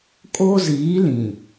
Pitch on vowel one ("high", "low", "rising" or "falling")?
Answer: high